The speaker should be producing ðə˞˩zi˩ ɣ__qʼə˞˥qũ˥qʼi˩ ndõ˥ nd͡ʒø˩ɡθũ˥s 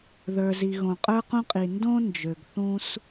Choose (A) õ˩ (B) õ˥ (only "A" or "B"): A